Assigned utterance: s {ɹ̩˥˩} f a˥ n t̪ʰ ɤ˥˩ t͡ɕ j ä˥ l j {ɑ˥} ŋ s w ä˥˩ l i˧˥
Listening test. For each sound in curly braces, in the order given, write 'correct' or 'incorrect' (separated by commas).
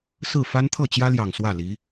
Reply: correct, incorrect